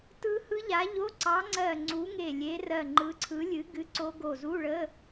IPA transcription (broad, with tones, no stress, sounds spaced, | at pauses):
t ɯ˦˥ h ɯ˦˥ ʎ a˨˥ ʎ o˧˥˧ ǀ ɑ˨˥ ŋ͡ǀ ɜ˧˩ ŋ͡ǀ u˨˥ ŋ e˧˩ lʲ e˨˥ r ɜ˧˩ ŋ͡ǃ ɯ˨˥ ǀʰ ɯ˨˥ lʲ ɨ˨˥ ɡ ɨ˧˥˧ ǀ o˦˥ ɡ o˧˩ z u˧˥˧ ɭ ə˧˥˧